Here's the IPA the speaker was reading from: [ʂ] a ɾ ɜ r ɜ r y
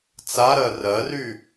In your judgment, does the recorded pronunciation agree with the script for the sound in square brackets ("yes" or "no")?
no